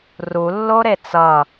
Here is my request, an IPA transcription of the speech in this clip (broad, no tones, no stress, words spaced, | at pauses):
rulːo ɾet͡sʌ